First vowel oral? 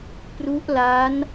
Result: yes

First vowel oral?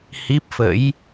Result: yes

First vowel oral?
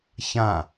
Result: no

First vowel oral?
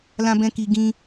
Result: no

